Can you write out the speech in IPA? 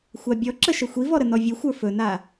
xʷabʲɔǁə ʃəxʷivɔ ɾənɔvʲɵxʷə˞ fɵna

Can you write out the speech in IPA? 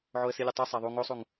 ʕoə̯silʲutˤu sˤæðˤu ŋosˤuŋ

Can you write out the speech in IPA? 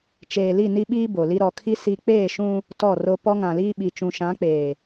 t͡ʃeː˨ li˦˨ ni˦ɓiː˦ bo˨li˦ ɾɔ˨kʰi˦ si˦ k͡peː˦˨ʃũ˦ | tɔ˦˨ro˦ pɔ˦ŋã˨liː˦ɓi˨ t͡ʃũ˨ʃã˨˦k͡peː˨

